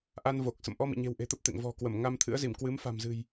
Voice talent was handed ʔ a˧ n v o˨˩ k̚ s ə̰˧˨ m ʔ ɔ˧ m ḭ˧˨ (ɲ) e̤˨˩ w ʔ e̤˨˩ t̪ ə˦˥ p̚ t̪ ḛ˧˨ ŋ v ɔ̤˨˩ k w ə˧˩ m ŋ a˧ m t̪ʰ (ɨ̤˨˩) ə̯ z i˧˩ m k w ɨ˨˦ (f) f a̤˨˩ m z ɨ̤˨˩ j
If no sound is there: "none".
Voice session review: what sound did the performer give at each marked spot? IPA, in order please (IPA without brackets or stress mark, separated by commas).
ɲ, ɨ̰˧˥, m